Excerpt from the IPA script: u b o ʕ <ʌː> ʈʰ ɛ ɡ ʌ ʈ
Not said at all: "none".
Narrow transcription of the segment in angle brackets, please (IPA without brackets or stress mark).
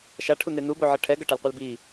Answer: ʌ